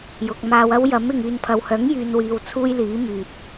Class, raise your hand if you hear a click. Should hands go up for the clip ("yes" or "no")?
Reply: no